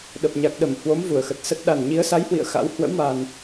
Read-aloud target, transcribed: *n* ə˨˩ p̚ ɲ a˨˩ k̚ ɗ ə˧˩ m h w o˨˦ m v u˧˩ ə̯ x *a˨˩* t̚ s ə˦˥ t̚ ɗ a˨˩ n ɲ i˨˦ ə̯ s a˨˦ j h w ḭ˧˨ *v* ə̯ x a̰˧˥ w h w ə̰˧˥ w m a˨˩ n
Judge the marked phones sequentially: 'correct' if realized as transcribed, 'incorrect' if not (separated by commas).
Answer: incorrect, incorrect, incorrect